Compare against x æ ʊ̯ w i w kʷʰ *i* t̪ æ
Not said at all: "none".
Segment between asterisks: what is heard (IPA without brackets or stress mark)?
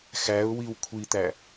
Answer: i